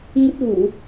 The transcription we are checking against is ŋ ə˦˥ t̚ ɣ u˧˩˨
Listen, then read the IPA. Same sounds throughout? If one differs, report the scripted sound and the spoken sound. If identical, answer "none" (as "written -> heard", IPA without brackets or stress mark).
none